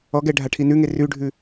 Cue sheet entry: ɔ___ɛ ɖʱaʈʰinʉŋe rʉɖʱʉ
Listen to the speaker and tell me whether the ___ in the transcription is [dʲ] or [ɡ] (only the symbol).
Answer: ɡ